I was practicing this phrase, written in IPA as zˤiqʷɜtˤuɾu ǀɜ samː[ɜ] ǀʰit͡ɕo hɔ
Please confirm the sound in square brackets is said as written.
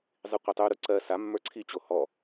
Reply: no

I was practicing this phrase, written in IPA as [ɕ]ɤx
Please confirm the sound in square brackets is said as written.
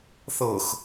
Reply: no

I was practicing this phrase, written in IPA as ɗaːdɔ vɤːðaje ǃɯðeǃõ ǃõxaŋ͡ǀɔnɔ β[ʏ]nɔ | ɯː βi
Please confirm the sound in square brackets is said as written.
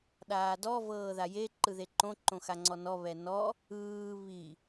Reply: no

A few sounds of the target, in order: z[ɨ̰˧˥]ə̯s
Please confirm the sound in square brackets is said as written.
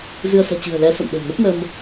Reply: no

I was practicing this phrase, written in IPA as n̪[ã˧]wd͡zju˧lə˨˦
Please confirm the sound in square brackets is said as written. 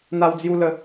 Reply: no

